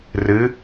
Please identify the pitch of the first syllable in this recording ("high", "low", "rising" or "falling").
rising